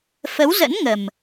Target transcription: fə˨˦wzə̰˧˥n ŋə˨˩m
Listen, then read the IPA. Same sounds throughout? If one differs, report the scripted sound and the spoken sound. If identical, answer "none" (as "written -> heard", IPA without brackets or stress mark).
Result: none